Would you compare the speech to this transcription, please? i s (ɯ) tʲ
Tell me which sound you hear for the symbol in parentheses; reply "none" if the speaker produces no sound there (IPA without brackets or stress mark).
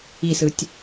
ɯ